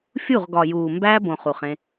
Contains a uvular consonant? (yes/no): yes